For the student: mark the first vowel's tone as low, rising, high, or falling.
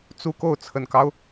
high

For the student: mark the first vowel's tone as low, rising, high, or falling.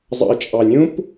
low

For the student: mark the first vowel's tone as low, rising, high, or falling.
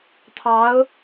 rising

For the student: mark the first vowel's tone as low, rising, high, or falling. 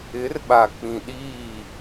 rising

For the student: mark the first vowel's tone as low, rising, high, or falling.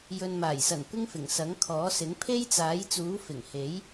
low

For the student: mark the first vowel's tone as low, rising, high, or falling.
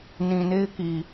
low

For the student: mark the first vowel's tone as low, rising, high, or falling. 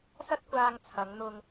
high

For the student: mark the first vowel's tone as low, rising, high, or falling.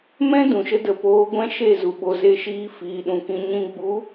high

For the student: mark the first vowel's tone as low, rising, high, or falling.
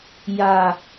low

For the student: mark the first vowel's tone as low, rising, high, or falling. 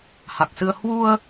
low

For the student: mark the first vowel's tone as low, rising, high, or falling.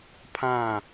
falling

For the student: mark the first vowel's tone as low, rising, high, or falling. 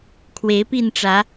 rising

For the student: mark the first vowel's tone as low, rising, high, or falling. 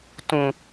high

